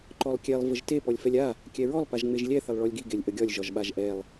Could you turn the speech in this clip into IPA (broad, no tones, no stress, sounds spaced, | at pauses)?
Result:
ǃ ɔ lˠ kʲ ɛ lˠ v ə ʒ t e p ɔ lʲ f ɛ lʲ a | kʲ ɛ ɹ ɔ lˠ p a ʒ ŋ͡m e ʒ lʲ ɛ θ ə lˠ ɭ ɔ lʲ ɡ i ɡ e lʲ ʔ ə ɡʲ ɒ lʲ ʒ ɒ ʒ ɓ a ʒ ʔ ɛ lˠ